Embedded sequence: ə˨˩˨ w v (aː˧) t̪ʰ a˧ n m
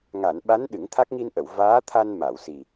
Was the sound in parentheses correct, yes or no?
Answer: no